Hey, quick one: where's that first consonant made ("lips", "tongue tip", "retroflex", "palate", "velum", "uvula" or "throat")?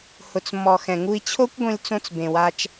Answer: throat